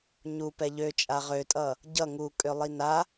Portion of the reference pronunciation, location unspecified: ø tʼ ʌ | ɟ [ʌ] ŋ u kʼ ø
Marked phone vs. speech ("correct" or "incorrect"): correct